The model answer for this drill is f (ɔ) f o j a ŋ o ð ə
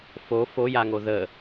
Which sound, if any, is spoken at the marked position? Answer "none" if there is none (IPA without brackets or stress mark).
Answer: o